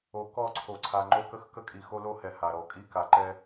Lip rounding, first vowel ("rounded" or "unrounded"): rounded